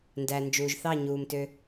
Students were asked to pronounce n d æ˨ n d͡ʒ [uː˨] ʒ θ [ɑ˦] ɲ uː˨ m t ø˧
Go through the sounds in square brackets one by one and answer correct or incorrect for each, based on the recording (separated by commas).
correct, incorrect